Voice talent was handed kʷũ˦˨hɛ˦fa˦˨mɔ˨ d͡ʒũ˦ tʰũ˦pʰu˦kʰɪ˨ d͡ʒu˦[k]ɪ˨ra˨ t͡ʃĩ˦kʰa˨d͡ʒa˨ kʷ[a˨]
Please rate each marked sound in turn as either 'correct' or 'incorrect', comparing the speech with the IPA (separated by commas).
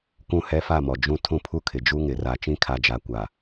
incorrect, correct